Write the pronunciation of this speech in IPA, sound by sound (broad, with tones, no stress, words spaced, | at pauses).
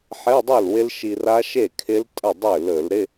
ħe˧˥˧dˤø˥˩l wɪ˦˥lʃi˧ ra˦˥ʃe˥˩kʰɪ˦˥l tʼə˥˩dˤø˥˩lɵ˧˩˧lɾɪ˧˥˧